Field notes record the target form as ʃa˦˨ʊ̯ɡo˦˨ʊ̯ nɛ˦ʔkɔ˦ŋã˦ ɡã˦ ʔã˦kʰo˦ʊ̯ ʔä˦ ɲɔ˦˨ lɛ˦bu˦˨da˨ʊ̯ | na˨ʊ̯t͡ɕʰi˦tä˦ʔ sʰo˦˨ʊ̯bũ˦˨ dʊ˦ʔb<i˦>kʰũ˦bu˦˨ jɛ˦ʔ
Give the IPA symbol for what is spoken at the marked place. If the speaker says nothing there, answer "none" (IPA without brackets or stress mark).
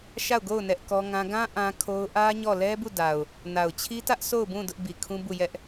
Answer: i˨